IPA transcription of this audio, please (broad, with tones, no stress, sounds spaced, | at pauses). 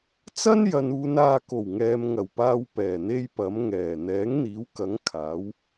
t͡s ɐ˥ n j ɐ˨ n uː˨˧ n aː˨ k o˨˩ w ŋ ɛː˨ m ŋ ɐ˨˩ w p aː˧ w p ɛː˨˩ n̪ e˥ j p ɐ˨˥ m ŋ ɛː˨˩ n̪ ɛː˨˥ ŋ n̪ iː˨˥ w k ɐ˨˥ ŋ kʰ aː˨˥ w